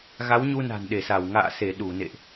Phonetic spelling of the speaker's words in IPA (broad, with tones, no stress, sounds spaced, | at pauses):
ɣ a˨˦ w ɲ u˧ n a̤˨˩ n ɗ e˧˩ s a˧˩ w ŋ a̰ː˧˨ s e˧˩ ɗ u˧˩ n ḛ˧˨ ʔ